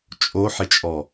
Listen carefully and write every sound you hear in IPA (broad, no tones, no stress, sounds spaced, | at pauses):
t͡ʃʼ o ħ ɪ t͡ʃʼ ɔ